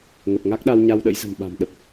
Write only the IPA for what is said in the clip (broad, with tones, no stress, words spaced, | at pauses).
ŋə˨˩p̚ŋa˦˥k̚ɗa˧w ɲa˧wɗə̰˧˥jzə̤˨˩mɓa̤˨˩m ɗə˨˩p̚